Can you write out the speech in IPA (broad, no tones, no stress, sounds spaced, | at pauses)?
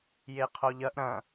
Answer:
j e qʰ o ʎ ɐ ʔ ɾ ɐ̃